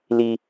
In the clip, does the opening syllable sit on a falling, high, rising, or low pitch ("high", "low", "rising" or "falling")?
high